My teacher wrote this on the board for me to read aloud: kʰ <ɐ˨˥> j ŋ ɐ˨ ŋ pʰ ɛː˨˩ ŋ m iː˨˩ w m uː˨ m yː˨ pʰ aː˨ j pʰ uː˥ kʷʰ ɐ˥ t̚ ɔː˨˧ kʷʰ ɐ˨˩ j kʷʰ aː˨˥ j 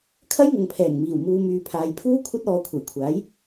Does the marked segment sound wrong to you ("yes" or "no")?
yes